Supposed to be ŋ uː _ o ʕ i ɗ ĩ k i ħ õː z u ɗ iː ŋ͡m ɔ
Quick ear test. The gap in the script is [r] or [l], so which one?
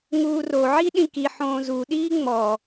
r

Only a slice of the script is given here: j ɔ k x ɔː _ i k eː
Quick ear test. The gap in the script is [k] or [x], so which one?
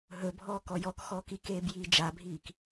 k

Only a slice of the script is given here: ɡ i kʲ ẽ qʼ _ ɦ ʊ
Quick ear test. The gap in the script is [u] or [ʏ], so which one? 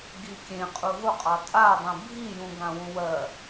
u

